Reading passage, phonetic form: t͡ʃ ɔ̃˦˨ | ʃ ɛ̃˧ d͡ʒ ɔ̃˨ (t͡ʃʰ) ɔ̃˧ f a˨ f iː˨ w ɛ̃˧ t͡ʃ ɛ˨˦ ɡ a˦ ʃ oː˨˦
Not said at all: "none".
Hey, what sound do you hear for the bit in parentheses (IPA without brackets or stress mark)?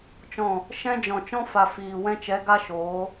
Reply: t͡ʃ